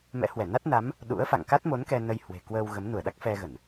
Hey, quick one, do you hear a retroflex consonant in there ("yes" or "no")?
no